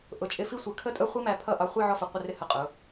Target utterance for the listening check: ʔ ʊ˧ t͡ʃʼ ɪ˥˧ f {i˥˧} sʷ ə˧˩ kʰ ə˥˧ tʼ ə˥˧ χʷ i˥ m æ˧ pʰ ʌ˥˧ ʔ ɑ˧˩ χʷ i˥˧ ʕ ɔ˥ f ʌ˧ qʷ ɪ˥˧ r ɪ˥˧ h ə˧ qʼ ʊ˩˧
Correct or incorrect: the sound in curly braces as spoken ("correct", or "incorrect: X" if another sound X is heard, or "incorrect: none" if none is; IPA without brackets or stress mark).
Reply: incorrect: i˥